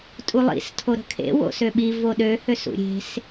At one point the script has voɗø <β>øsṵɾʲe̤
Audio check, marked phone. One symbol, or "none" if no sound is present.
h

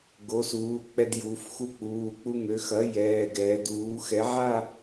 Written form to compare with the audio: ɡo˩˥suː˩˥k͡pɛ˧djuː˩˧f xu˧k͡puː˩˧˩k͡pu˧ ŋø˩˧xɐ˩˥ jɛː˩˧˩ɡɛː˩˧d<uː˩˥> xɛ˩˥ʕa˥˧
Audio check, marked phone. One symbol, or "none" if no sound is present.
uː˩˥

